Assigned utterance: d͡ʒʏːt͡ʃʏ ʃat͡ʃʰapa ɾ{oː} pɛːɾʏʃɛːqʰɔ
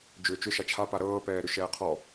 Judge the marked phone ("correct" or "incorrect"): incorrect